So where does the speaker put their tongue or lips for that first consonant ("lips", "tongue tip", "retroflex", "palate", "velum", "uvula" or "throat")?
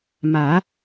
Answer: lips